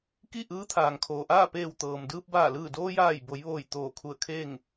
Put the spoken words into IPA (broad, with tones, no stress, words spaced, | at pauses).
ki˥˨ʔɯː˧˥ t̪ʰaː˩ŋkʰoː˩ʔaː˥˨ peː˧˩wt̪ɤː˩mdɯː˧p̚ baː˧˩lɯː˧˩doː˧jaː˧˩j bo˩˧jʋoː˧˩j t̪oː˧˩kʰu˧˩ə̯kʰeː˥˨ŋ